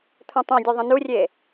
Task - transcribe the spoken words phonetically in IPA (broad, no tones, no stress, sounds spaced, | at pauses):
t̪ʰ ũ tˤ õ dʲ u ðˤ ə̃ n u rʲ e